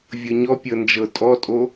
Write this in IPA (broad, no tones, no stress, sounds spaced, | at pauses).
vʲ ɤ ɲ ɔ pʲ ɤ n d͡ʒ ɤ tʼ ɔ tʼ o